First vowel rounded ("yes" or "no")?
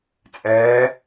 no